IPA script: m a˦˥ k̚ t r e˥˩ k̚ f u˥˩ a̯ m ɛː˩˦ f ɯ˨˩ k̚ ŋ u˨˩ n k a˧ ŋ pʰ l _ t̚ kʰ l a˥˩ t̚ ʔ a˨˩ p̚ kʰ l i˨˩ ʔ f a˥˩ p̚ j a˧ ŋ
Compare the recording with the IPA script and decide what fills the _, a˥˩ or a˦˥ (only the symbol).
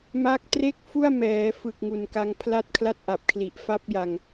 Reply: a˥˩